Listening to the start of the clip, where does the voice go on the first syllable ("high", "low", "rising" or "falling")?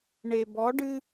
low